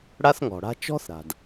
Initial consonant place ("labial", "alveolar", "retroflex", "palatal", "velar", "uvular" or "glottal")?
retroflex